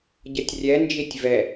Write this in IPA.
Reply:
ɟ ʌ tʲ rʲ ɛ n d͡ʒ i tʲ v ɛ

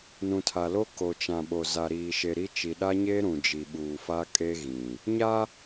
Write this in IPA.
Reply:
n ũ˨ tʰ a˨ l o˦ k o˨ t͡ʃ ã˨ ɓ o˨ z a˨ ɾ iː˨ ʃ e˨ ɾ i˦ t͡ʃ i˨ ɗ a˦ ɲ eː˦ ɾ ũ˨ d͡ʒ i˨ ɓ uː˨ f a˦ kʼ e˦ ɣ ĩ˨ | ɲ a˦

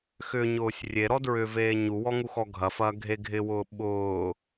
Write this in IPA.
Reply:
x ʏ ɲ ʊː sʲ rʲ e ɾ ɔ d ɹ ʏ v eː ɲ u w ɔ ŋ u x ɔ ɡʱ ɐ f ɐː ɡʱ e ɡʱ ɪ w ʊː ɓ ʊː

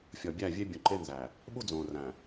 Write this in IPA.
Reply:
fʲ ɒ˨ bʲ æ˦˨ vʲ e˦ bʲ ũ˨ ǃ e˦ n z æ˨ | ɓ u˦ d͡z õː˨ r æ̃˨

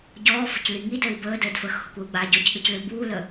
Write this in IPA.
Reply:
ɟ ɔː f ə̤ c l i ŋ i d əː i̯ b əː d əː d f əː x h ʊ kʷ əː u̯ ɡ͡b aː ɟ ɔ c ɠ ə c l ʏ b uː l ə

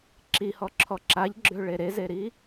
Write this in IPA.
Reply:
ǁ i h ɔ ǁʰ ɔ ǁ a ʎ ɡ͡ǁ ø ɭ e ɾ e z e ɾ i

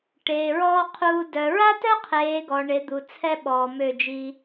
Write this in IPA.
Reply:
ʈ eː˨ ɹ ɔː˦ qʰ uː˧ d œ˨ ɹ a˦ t œ˦ qʰ eː˨˦ ɡ ɔ˨ ɳ e˨˦ d̪ u˨ t͡sʰ ɛ˦ ɓ ɔː˨ m ø˦˨ d͡ʒ i˦

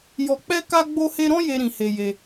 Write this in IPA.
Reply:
j ɔ˧ k͡p ɛ˦ k a˦ ɡ͡b o˦ h e˦ ɾ ɔ̃˦ j e˦ ɾ ĩ˧ h e˧ j e˧

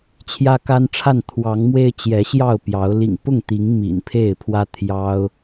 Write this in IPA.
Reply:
t͡ɕʰ j ä˦ k a˦ n ʈ͡ʂʰ a˥˨ n t̪ʰ w ɑ˨˦ ŋ m w e˦ ɪ̯ t͡ɕ j ɛ˨˦ ɕ j ɑ˥˨ ʊ̯ p j ɑ˨˦ ʊ̯ l ḭ˨˩ ŋ p ʊ˥˨ ŋ t̪ i˨˦ ŋ m ḭ˨˩ n pʰ e˥˨ ɪ̯ pʰ w ä˦ t̪ʰ j ɑ˦ ʊ̯

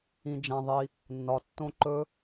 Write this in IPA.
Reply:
ĩ˩ d͡ʒ ã˩ ðˤ i˩ | nː ɒ˩ tː õ˦˥ ǃ ɵ˦˥

